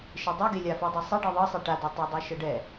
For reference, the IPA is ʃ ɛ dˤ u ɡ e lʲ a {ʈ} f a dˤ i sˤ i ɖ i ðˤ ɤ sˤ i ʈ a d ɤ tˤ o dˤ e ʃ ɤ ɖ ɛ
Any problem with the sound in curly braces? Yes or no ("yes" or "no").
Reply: yes